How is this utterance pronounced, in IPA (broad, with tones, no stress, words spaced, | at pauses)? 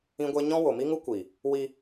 ĩ˦ɡʷe˦ ɲɔ̃˦wo˨mi˦ŋu˦ kʷi˨ | wi˧